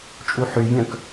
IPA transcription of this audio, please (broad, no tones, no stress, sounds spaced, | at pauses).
t͡ʃʼ u ħ y vʲ œ̃ k